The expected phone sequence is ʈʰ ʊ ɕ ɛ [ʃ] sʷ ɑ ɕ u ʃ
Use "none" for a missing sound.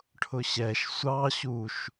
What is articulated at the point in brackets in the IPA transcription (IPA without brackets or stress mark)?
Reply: ʃ